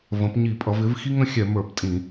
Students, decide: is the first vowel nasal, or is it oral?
nasal